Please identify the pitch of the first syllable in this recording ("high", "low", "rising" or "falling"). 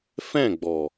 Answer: falling